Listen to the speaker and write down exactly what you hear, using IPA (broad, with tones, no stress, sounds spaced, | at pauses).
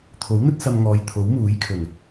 t̪ʰ o˨˥ w n̪ ɵ˥ t̚ s ɐ˧ m ŋ ɔː˨˧ j t̪ʰ o˨˥ w m uː˨˥ j kʰ ɵ˨˩ n